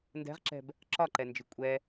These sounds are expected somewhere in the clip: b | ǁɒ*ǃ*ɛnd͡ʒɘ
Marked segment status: correct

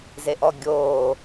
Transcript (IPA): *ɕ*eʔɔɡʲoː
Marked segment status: incorrect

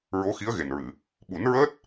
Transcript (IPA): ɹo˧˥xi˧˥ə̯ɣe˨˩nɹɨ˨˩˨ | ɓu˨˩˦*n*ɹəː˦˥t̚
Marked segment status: correct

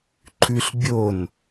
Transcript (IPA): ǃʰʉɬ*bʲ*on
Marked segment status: correct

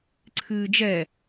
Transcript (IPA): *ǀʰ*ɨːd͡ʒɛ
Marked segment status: correct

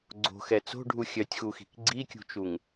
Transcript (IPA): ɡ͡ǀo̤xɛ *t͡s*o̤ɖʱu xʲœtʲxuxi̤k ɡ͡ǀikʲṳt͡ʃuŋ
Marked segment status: correct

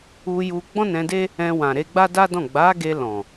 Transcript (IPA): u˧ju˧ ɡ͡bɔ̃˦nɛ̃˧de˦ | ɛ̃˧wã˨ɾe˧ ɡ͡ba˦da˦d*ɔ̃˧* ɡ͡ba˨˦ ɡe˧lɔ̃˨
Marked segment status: incorrect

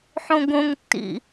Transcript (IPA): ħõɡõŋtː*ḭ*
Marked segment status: correct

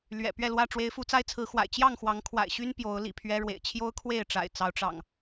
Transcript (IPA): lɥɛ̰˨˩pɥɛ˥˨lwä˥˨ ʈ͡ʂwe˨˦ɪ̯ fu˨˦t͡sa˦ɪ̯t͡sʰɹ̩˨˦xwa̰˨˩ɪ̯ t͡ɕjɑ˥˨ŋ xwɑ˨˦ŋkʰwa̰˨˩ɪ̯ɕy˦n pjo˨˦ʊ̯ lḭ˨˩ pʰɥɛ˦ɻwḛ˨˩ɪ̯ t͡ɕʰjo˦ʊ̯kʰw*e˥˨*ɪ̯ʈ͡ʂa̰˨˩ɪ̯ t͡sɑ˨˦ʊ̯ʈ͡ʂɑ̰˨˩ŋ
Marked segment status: correct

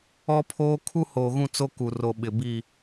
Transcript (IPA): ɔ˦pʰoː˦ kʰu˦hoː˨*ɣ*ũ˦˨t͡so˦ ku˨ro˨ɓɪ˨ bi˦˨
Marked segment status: correct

